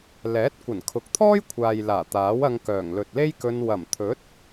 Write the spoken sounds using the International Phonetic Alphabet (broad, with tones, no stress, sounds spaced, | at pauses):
l ɛː˨˥ t̚ kʷ ɐ˨˩ n kʰ ʊ˨ k̚ t̪ʰ ɔː˥ j kʷʰ aː˨ j l aː˨˩ t̪ aː˨˥ w ɐ˧ ŋ k œː˨˩ ŋ l ɵ˨ t̚ l e˥ j k ɵ˧ n w ɐ˨˩ m t̪ʰ ɵ˨˥ t̚